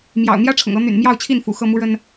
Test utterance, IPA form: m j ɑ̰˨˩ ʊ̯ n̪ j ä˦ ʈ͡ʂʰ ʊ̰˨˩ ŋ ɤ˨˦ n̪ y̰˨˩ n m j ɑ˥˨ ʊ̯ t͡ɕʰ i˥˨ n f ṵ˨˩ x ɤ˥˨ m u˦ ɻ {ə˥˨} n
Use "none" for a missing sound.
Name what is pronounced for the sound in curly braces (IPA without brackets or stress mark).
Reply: ə˦